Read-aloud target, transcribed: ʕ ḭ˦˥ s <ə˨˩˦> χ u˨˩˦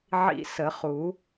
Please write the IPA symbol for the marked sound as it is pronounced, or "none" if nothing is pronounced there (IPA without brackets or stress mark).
ə˨˩˦